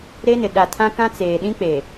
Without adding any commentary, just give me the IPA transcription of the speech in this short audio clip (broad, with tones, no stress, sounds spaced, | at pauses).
ɾ e˦ n ɪ˨ ɗ a˨ tʰ ã˦ k ã˦ t͡s eː˨ ɗ ĩ˦ k͡p e˨